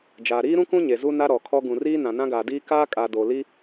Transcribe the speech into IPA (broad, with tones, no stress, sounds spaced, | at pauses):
d͡ʒ aː˨ ɾ iː˦ ɾ ũ˦ k ũ˦ ɲ e˨ z u˦ n a˦ ɾ ɔ˨ kʰ ɔ˦ ɡ ũ˨ r iː˦ n ã˨ n ã˦ ɡ aː˨ d iː˦ k aː˦ kʼ a˨ d o˨ l i˦